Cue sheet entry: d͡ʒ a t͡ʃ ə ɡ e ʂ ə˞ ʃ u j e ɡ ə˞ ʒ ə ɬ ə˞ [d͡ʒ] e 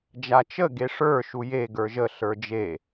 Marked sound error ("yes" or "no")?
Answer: no